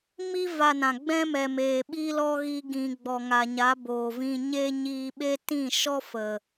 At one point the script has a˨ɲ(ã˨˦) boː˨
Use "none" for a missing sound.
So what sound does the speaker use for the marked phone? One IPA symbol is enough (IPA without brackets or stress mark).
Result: a˨˦